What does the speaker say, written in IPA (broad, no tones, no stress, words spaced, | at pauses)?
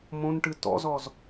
mõnʈɨ tɔ̰zɔz